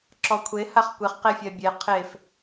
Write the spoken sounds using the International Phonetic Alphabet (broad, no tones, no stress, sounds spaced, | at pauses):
ǁ ɔ kʷʰ e h a χ kʷ e χ q e fʲ ɜ bʲ e qʰ e f